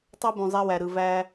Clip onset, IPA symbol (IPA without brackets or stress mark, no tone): tˤ